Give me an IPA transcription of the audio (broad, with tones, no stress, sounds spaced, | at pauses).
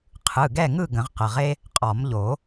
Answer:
qʰ ɯ˩˧˩ ɡ ɛ˥˨ ŋ ɯ˥˨ ɡ ə̃˨˩˦ ʁ q ə˩˧˩ ʁ e˥ | qʼ ɒ˨˩˦ m ʎ o˨˩˦